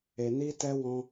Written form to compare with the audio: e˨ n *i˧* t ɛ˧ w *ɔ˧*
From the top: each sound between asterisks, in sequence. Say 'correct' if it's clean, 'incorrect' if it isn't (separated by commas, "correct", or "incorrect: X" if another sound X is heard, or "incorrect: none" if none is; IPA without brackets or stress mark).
correct, incorrect: ɔ̃˧